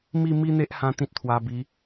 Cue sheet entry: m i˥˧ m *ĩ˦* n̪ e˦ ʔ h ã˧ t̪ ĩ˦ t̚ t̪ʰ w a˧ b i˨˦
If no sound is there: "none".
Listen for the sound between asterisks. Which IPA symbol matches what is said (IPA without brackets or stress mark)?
i˦